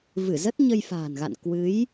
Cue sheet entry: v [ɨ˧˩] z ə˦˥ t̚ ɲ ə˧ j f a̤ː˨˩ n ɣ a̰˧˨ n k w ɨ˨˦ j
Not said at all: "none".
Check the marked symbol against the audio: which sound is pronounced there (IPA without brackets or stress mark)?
ɨ˧˩